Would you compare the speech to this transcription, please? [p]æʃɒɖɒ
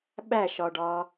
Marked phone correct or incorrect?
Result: incorrect